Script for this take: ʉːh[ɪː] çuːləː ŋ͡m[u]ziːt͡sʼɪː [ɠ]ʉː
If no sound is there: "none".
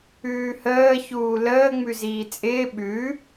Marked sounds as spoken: əː, ʉ, ɓ

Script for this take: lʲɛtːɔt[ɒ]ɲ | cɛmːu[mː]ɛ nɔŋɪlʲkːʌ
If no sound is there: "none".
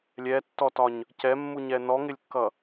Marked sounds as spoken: ɒ, ɲ

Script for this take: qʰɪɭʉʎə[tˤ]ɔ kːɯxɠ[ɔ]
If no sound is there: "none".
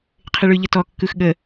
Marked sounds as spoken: t, ə

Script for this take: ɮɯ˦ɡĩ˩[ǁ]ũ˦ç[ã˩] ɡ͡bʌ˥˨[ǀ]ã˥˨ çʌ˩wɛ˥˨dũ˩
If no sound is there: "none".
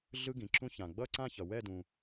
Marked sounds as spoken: ǁ, ã˩, ǀ

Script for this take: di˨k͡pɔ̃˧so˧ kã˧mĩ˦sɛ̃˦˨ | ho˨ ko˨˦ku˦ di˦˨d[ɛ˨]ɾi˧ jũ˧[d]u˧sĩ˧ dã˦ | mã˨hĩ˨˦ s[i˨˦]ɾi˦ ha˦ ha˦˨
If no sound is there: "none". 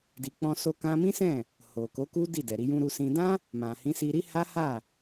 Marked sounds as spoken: ɛ˨, ɾ, i˧

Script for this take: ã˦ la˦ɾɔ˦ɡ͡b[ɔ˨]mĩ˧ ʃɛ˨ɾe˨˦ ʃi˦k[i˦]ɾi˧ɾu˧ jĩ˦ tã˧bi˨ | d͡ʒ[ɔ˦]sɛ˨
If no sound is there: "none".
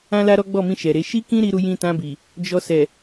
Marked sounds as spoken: ɔ˦˨, ĩ˦, ɔ˧

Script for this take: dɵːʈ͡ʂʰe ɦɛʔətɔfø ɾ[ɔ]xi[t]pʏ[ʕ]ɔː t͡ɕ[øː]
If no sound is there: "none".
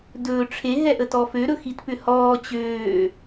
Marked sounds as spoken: ɵ, t, h, øː

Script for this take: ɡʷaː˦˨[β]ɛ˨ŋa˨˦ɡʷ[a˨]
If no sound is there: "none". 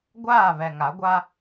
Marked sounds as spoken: β, a˦

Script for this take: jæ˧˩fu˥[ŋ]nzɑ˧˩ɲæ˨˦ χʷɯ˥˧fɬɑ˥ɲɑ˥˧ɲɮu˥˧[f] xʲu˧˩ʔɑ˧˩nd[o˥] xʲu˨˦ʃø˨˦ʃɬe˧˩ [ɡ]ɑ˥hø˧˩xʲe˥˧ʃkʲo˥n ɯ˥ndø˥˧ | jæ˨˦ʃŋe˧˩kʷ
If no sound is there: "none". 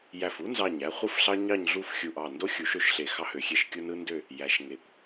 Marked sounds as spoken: none, f, o˥, x

